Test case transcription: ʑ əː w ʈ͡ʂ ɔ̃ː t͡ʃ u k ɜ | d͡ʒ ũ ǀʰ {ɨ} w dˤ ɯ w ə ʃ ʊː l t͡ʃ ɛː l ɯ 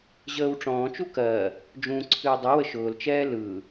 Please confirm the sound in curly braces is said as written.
yes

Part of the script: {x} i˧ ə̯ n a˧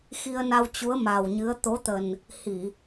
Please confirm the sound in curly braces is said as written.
yes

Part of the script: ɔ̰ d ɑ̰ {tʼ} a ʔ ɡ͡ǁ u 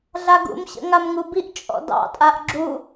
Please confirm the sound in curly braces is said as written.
yes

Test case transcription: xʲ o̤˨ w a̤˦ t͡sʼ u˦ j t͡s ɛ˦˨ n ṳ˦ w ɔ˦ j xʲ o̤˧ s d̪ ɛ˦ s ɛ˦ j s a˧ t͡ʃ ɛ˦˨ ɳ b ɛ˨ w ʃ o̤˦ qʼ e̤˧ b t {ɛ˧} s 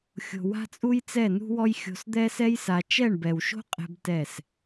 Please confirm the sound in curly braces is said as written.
no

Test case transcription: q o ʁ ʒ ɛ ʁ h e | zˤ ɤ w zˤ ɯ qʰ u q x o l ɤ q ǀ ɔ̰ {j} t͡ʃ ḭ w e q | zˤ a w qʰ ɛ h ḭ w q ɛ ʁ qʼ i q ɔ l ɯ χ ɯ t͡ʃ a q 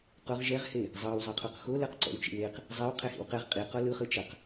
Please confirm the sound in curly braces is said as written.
no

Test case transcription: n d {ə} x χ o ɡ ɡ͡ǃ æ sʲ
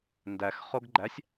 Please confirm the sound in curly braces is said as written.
no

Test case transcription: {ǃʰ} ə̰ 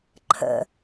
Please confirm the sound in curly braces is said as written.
yes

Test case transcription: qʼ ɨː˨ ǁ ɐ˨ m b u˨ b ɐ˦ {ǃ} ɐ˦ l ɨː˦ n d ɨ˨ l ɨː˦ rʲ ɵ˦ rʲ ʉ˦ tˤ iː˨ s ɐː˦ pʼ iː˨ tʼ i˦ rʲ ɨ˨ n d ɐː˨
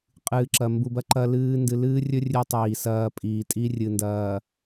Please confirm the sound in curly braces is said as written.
yes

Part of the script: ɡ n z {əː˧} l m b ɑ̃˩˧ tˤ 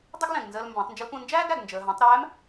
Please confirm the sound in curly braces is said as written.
yes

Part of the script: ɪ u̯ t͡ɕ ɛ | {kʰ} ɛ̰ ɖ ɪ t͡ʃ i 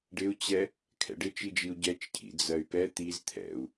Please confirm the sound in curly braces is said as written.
yes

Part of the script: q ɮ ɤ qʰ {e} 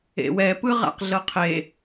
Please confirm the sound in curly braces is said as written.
yes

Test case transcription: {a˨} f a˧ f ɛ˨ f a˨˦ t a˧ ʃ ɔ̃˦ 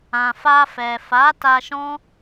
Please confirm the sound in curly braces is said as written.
no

